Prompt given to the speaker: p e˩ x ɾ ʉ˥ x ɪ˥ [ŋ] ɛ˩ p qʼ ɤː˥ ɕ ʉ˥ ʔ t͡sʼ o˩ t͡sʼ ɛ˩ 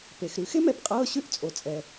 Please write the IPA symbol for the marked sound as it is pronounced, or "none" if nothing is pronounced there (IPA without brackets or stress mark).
m